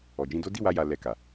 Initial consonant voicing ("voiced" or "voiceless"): voiced